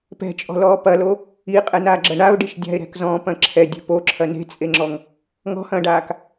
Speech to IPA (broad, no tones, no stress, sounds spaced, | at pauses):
p ɛ̤ t͡ʃʼ ɔ̤ l ɔː p ɐ l o | i qʼ ɛ n aː ɡ͡ǁ ɐ ɳ a ʊ̯ ɖ i ʃ dʲ a̤ ɪ̯ ɾ ɛ̤ k z ɔ̃ː p ɐ̃ ǁʰ ɛ dʲ ɛ̤ p o ǁʰ ɐ n e̤ t͡sʼ e ŋ͡ǁ ɔ ŋ | ŋ ɔ̤ h ɐ̃ː ɖ aː k